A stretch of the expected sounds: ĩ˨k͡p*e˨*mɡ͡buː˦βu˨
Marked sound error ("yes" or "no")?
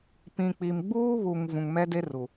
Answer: yes